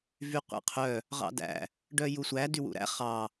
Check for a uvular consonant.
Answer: present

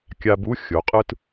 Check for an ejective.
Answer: present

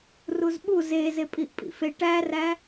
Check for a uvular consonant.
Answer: absent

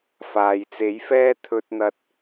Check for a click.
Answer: absent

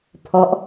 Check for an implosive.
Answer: absent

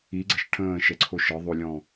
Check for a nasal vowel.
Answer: present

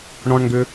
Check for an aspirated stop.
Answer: absent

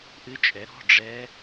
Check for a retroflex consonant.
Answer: present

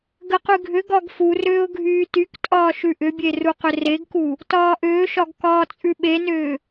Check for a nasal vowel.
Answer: absent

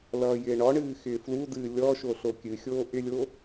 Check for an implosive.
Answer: absent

